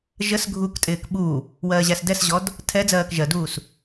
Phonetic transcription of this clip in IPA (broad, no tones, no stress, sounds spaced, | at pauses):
ʒ ə s ɡʱ u k tʼ ɪː k ɓ u | w ɜː ʑ æ s d ɛ s ʑ ɔ d | tʰ ɛ d͡z ɜː k ʒ ɜ d uː s